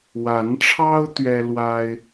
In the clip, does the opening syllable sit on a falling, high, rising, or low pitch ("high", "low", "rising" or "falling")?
rising